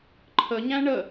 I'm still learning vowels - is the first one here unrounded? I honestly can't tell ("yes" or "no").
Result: yes